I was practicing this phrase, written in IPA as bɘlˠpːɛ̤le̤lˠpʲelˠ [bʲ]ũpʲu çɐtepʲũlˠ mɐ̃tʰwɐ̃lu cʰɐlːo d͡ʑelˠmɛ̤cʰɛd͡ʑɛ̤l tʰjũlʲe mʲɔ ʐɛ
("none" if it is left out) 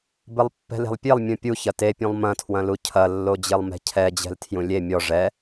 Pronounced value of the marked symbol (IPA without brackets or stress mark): mʲ